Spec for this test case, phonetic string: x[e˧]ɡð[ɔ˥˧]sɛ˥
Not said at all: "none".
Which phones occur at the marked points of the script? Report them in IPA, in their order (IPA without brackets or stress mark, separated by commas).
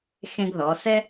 ẽ˧, ɔ˩˧